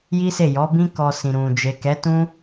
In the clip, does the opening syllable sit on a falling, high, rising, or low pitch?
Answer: high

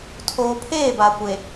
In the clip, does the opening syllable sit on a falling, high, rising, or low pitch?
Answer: low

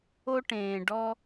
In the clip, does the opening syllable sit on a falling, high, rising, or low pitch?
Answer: high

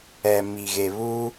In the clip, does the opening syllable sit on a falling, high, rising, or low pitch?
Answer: low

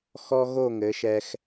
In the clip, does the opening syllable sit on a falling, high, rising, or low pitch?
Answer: high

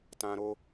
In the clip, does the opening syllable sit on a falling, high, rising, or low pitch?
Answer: high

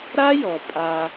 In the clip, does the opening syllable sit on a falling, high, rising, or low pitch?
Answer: high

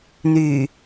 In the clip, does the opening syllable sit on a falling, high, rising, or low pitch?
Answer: low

